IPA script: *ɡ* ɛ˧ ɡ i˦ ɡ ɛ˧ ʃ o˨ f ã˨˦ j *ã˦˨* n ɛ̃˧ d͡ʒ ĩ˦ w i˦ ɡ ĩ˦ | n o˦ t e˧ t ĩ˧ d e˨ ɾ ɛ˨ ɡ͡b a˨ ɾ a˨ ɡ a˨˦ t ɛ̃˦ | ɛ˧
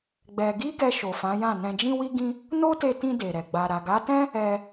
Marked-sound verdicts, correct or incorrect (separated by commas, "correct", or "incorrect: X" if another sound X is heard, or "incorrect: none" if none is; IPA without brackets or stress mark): incorrect: ɡ͡b, correct